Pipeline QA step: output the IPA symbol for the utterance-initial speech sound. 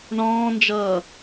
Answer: ɳ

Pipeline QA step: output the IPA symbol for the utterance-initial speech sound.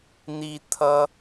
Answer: n̪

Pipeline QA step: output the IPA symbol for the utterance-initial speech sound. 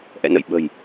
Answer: ʔ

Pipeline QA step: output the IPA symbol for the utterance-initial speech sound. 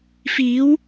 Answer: f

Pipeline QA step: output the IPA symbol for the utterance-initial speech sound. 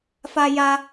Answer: f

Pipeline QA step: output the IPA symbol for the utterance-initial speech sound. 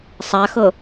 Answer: sˤ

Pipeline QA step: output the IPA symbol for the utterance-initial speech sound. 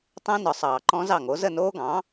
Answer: tˤ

